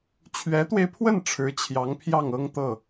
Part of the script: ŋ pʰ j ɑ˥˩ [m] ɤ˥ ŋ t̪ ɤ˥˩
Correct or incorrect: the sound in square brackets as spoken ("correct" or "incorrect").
incorrect